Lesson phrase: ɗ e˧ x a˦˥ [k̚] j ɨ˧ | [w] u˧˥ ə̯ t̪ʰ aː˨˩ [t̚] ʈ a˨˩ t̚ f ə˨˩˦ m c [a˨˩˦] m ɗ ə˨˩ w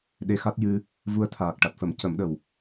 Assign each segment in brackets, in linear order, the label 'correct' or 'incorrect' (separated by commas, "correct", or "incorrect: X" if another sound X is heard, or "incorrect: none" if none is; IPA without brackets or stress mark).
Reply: incorrect: t̚, incorrect: v, incorrect: k̚, incorrect: ə˨˩˦